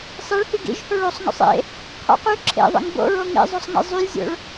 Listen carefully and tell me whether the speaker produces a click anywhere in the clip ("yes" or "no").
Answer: yes